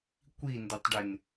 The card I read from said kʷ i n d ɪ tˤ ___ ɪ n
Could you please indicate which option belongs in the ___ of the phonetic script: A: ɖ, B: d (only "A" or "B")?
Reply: A